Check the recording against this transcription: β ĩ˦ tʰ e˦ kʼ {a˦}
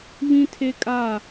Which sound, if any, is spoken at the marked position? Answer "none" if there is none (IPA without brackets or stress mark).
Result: a˦˨